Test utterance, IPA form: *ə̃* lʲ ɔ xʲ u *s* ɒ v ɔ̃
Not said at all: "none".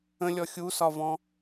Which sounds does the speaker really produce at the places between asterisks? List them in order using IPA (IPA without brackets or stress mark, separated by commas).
ə̃, s